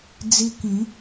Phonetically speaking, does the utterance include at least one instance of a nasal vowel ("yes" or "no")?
yes